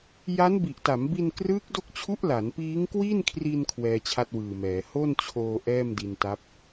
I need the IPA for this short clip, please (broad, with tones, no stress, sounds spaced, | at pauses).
j a˦˥ n b i˨˩ ʔ t a˩˦ m b i˧ n k r ɯː˦˥ k̚ d o˦˥ k̚ t͡ɕʰ u˦˥ ʔ l a˩˦ n p iː˦˥ ŋ k w i˥˩ n kʰ r i˧ n kʰ w ɛː˧ t͡ɕʰ a˥˩ t̚ w ɯː˨˩ m ɛː˩˦ h o˥˩ n t͡ɕʰ oː˧ ʔ ɛː˥˩ m d i˧ n t a˦˥ p̚